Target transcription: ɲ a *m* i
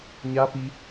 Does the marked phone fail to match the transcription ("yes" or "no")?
yes